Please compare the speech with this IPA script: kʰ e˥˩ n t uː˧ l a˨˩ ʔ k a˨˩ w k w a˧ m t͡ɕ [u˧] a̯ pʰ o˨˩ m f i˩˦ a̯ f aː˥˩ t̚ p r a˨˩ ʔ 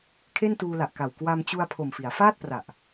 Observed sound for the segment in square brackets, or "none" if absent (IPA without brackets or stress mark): u˧